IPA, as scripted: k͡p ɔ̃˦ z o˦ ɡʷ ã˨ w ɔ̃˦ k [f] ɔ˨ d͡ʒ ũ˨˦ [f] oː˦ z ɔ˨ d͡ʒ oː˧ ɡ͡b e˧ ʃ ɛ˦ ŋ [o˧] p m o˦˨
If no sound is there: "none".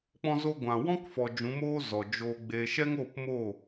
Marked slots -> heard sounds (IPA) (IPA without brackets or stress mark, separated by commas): f, m, o˦˨